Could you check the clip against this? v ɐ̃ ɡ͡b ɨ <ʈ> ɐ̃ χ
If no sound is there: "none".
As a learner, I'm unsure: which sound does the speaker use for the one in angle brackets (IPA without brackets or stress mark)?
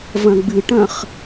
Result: ʈ